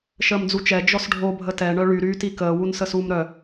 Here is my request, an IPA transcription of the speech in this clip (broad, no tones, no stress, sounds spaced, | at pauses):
ʃ əː m d͡z u t͡ʃ ɛ d͡ʒ ɔ s ɖʱ o bʱ ə t ɛ ɳ œ ɭ y ɾ yː t i k əː w u n s ə s uː m ɾ œ